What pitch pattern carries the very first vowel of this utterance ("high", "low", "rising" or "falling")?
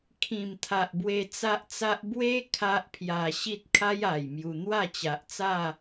low